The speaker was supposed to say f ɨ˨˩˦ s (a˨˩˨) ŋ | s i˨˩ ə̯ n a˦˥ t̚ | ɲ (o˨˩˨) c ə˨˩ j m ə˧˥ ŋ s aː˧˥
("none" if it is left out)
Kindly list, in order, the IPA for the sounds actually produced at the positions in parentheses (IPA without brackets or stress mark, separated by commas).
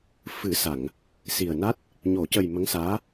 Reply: a˨˩˨, o˨˩˨